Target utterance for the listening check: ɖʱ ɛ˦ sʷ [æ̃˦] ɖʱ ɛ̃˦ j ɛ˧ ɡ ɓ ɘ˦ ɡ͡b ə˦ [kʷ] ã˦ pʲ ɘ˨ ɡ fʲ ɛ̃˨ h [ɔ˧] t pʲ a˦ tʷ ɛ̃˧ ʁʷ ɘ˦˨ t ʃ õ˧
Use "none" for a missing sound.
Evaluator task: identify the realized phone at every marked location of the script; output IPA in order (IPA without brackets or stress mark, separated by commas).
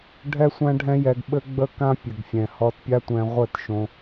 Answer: æ̃˦, k, ɔ˧